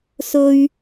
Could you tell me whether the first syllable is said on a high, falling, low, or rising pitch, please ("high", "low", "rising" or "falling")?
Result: high